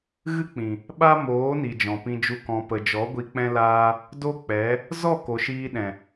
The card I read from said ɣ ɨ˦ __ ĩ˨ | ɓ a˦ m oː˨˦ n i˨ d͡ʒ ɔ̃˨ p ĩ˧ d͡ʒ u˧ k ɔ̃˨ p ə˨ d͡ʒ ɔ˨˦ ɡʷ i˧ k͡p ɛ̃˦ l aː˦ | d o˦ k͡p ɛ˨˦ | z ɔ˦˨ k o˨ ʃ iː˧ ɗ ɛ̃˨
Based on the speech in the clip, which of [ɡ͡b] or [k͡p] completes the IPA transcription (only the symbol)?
k͡p